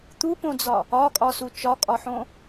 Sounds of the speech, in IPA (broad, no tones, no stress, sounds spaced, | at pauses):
t̪ u p õ d͡z ɒ | ɒ kʼ ɒ s u t͡ʃ ɒ kʼ ɒ ħ õ